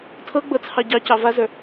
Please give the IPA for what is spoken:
tʰ ɤ ɡ͡b ɤ t͡sʰ ɑ ɟ ɑ c ɑ v a z ə˞

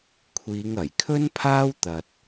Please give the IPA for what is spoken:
kʷʰ iː˨˧ ŋ ɐ˨˩ j kʰ ɵ˥ n pʰ aː˥ w t̪ ɐ˧ t̚

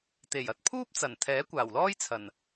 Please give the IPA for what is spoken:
t̪ e˨˩ j ɐ˧ t̚ pʰ uː˥ p̚ t͡s ɐ˨˩ n t̪ʰ ɛː˨˥ kʷ aː˨˩ w l ɔː˥ j t͡sʰ ɐ˨˩ n

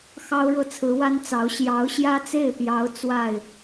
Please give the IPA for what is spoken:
x ɑ˥ ʊ̯ ɻ ɤ˥˩ t͡sʰ ɹ̩˧˥ w a˥ n t͡s ɑ˧˥ ʊ̯ ɕ j ɑ˧˥ ʊ̯ ɕ j ä˥ t͡s e˥˩ ɪ̯ p j ɑ˧˥ ʊ̯ t͡s w a˥˩ ɪ̯

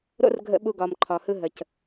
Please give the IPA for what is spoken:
ɾ o̰˦ r ɡʱ ə̰˧ ɓ u˧ ɡ ɒ˨ m ǃʰ ɒ˨ h ɯ˧ ɦ ə˨ c

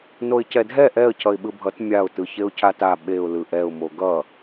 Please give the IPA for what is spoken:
n o ɪ̯ c ɛ dʱ ɛ ʔ ɛ ə̯ cʰ ʌ ɪ̯ ɓ ɯ bʱ ʌ t mʲ a ʊ̯ t ɯ ç e ʊ̯ cʰ a t a ɓ e ʊ̯ l ɯ ʔ ɛ ʊ̯ m o ɡ ʌ

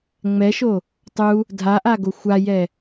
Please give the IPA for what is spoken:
ŋ͡m ɛ ʃ o | tˤ u | dʱ a ʔ a ɡ o xʷ a j ɛ

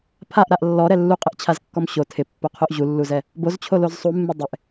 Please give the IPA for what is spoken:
pʰ a ʔ ɾ a ʔ lː ɔ ɾ ɛ lː u qʼ ɪ ʔ t͡ɕʰ a z kː ɔ m ɕ o tʰ ɪ pː o qʰ o ʔ ʑ u lː u z ɛ | b o z t͡ɕʰ o l o z sˤ u mː ɪ dˤ ɪ ʔ

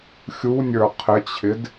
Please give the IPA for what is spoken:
xʲ u nʲ ə˞ qʰ ɪ t͡ɕʰ ɪ d

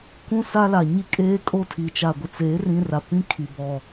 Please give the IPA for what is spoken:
k ũ˦ s a˦ l a˨ ɲ i˦ kʼ eː˦ kʼ o˦ tʰ iː˨ t͡ʃ a˨ ɡʷ ɪ˨ t͡s eː˨˦ r ĩ˦ r a˨ p ĩ˦ kʰ i˨ b ɔ˨

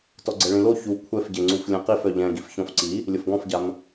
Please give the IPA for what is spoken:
t ɔ ɡ͡ǀ ɛ ɭ ĩ l o ç u kʷʰ ɛ f ɟ e ŋ͡ǀ u f lʲ ɛ̃ q i f œ ʎ ɛ̃ ɡ i f ç ɔ̃ f ǀ i | lʲ ə f ɡ ɔ̃ f ɟ a m

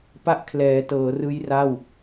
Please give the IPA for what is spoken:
p a˥˩ ʔ kʰ l ɛː˩˦ t ɤː˩˦ r ɯː˦˥ j r a˥˩ w

